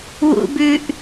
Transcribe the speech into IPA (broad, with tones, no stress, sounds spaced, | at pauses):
w ṵ˧ b ʉ˧ ʔ